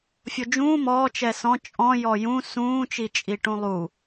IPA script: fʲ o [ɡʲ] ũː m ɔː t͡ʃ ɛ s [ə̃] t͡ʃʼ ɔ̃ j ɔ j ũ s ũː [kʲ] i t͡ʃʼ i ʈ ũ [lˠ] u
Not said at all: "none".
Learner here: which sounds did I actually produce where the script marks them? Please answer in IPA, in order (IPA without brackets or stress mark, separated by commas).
d͡ʒ, ɔ̃, t͡ʃ, lˠ